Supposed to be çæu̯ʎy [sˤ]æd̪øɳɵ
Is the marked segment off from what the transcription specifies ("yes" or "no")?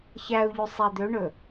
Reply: no